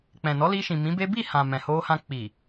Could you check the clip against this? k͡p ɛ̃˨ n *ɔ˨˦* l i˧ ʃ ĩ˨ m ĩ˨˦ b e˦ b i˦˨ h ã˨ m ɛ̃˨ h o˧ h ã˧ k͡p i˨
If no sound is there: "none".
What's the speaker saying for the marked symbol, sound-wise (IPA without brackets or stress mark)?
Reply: ɔ˨˦